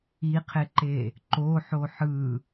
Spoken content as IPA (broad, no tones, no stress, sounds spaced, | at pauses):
i qʰ e ǃ e | ǃ o ħ o ħ ɯ